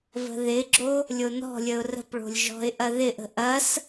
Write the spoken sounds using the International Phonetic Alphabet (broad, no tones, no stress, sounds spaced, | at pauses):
v ə̤ ð ɪ ɡ͡ǁ o | lʲ o n ɔ̤ lʲ ə ʊ̯ r ə̤ p ɭ o̤ lʲ ʒ ɔ̤ ɪ̯ ʔ ɐ ð ɪ ʔ ə̤ ʔ ɐ s